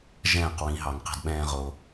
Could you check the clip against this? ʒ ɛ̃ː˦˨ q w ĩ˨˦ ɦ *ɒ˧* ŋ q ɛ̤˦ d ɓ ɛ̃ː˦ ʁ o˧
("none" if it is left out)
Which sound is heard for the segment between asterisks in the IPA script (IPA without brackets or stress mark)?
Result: ɑ˧